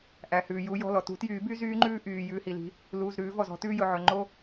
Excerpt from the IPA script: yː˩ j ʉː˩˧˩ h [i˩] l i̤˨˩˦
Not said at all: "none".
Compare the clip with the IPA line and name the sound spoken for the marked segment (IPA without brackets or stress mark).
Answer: i˩